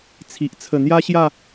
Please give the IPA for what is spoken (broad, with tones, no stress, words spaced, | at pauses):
t͡sʰi˨ʔ t͡sʰə˨˩n̪ja˦ɕja˥˧